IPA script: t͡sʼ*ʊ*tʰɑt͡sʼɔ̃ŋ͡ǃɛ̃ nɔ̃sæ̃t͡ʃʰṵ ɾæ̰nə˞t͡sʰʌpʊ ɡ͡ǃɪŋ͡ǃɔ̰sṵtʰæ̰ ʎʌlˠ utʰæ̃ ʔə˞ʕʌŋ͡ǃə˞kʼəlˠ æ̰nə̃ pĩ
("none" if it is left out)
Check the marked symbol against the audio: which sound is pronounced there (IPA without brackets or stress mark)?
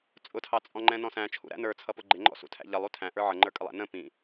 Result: ʊ